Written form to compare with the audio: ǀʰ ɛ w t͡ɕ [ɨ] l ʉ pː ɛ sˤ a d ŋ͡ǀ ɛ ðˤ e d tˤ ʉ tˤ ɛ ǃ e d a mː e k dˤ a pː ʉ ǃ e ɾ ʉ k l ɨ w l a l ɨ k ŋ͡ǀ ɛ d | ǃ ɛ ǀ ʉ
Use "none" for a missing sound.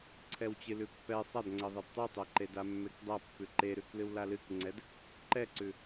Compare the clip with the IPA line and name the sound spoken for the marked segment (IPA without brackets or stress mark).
ɨ